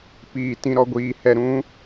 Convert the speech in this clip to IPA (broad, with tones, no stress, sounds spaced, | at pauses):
p iː˧ t ĩ˧ ɾ ɔ˧ ɡʷ iː˧ h ɛ˧ ɾ ũ˦